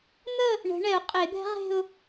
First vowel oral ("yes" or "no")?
yes